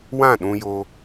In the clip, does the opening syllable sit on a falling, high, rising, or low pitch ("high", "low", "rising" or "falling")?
falling